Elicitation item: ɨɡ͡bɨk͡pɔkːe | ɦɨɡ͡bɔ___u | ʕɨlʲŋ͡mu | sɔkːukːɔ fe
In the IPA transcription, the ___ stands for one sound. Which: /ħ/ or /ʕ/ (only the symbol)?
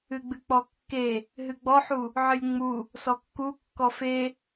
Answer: ħ